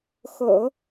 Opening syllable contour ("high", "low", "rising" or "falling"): low